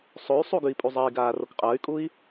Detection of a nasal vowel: absent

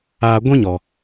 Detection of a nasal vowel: present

